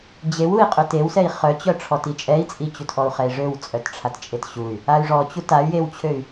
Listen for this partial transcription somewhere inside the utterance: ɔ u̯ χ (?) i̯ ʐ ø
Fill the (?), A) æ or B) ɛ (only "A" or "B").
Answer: B